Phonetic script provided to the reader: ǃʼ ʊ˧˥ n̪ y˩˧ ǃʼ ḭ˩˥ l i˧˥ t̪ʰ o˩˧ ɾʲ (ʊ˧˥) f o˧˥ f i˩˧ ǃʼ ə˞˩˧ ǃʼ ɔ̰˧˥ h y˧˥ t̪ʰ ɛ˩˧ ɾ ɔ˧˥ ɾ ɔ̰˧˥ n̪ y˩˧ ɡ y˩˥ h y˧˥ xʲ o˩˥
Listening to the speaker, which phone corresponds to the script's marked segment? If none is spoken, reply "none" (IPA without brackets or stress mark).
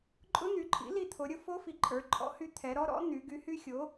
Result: ʊ˧˥